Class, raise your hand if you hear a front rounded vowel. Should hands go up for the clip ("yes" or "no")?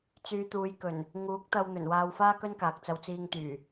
yes